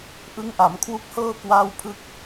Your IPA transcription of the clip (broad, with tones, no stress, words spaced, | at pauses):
ʔɯ˦˥ŋʔa˩˦mkʰwu˦˥k̚hɤː˥˩ kwaː˥˩wpʰɯ˥˩k̚